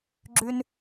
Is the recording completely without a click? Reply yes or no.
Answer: no